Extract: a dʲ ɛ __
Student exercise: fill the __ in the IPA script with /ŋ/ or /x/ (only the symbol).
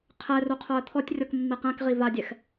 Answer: x